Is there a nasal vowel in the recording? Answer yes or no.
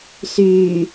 no